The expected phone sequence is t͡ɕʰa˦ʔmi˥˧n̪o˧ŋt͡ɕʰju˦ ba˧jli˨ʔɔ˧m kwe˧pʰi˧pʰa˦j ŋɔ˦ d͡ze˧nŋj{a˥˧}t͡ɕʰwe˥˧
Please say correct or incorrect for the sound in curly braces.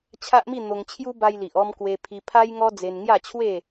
correct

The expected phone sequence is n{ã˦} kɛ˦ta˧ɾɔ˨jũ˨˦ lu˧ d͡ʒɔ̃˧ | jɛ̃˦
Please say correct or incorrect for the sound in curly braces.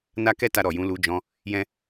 incorrect: a˦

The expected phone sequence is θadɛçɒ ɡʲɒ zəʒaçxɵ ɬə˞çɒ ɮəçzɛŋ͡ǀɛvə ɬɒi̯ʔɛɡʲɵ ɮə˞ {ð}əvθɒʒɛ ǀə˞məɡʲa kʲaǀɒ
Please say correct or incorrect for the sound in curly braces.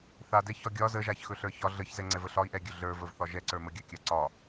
incorrect: v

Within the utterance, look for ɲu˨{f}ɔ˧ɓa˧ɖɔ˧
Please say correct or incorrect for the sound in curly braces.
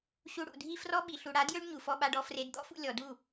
correct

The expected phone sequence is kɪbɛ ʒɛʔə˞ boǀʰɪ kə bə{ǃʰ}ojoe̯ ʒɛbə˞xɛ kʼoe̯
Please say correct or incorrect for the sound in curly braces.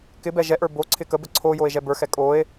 incorrect: ǀʰ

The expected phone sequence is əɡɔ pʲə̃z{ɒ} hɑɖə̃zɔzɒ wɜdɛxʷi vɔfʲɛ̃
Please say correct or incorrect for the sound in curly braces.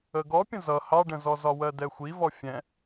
incorrect: ʌ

